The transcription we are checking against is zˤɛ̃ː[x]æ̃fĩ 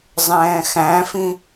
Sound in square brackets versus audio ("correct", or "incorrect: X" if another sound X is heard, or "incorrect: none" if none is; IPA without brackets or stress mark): correct